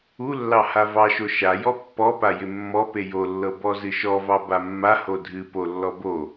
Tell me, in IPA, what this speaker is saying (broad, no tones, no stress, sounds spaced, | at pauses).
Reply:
u lː ɑ h a v ɑ ʃ o ʃ a j ɔ pː ɔ p a j ɪ mː ɔ p e j o lː ɤ b ɔ z ɨ ʃ ɔ v ɑ b a mː a h o dʱ ɨ p o lː ɔ b o